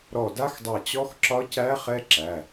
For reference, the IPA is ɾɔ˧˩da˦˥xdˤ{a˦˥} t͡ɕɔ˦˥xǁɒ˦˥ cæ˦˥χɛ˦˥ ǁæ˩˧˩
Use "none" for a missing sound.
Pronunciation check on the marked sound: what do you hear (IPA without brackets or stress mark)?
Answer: a˧˩